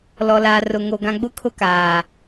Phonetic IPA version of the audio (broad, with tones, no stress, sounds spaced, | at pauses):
l ɔ˨ l aː˨ r ʊ˨ ŋ o˨ ɡ ã˨ ɡ͡b ʊ˦ kʰ ʊ˦ k aː˨